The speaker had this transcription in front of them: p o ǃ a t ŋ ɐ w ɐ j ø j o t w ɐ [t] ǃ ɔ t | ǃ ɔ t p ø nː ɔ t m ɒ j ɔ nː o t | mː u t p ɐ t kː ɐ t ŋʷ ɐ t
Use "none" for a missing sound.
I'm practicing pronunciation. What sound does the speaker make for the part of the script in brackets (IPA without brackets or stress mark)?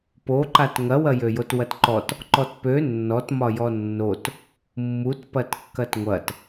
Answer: t